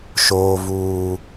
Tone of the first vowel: high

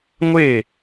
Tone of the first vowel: falling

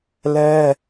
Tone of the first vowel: high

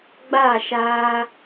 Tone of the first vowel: falling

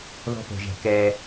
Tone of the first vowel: high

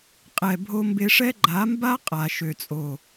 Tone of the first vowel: low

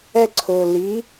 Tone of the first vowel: high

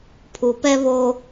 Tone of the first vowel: low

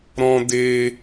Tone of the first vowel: high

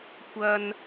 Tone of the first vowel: high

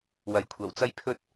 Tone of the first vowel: rising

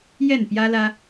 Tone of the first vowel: falling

